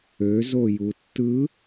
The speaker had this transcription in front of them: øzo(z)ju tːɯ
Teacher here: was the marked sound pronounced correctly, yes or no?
no